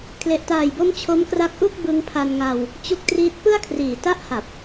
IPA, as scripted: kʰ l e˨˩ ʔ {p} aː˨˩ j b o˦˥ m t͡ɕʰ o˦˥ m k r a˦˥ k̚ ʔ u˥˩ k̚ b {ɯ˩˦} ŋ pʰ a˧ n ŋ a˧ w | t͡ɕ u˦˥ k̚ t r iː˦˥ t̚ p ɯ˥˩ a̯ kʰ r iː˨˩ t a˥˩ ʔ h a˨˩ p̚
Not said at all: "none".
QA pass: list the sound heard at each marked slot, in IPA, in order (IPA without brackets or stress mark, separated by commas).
t, ɯ˧